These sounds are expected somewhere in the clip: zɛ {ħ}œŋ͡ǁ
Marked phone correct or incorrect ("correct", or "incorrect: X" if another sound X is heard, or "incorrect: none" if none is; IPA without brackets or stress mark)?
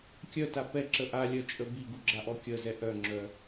incorrect: ʔ